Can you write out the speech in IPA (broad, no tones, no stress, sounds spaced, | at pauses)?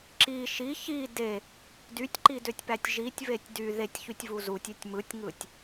ǁ i ʃ i ç i d e | d y tʲ ǃ i d ø tʲ p æ tʲ ʒ i tʲ v e tʲ d y ð e tʲ ç y tʲ v u z u tʲ ø tʲ m ɯ tʲ ŋ ɯ tʲ